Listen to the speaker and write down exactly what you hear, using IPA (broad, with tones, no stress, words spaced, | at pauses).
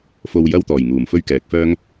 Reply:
fo˧wjɐ˥wt̪ɔː˨˩j ŋuː˨˩mfɵ˥ɥkɛː˨˥k̚fœː˥ŋ